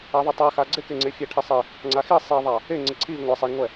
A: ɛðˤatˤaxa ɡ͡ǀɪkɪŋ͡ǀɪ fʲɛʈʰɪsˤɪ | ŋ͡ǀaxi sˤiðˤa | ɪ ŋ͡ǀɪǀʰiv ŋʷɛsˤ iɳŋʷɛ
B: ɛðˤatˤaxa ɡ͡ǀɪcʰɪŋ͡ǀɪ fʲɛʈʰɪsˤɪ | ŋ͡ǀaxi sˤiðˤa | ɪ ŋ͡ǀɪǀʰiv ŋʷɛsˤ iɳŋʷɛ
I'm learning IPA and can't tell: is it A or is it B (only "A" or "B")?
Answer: A